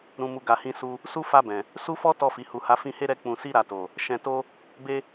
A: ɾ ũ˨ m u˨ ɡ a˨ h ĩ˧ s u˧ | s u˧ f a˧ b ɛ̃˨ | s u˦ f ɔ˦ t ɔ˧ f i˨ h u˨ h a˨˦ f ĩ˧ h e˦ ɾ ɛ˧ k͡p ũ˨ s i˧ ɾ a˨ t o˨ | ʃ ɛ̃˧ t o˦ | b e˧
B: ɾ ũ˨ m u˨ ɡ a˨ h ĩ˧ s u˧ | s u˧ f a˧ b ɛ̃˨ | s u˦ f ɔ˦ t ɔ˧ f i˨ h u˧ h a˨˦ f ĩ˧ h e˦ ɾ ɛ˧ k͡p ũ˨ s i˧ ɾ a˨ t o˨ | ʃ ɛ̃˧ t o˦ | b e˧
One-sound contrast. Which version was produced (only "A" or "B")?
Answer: A